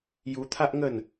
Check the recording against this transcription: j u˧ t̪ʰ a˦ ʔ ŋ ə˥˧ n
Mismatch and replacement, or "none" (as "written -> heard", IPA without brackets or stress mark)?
none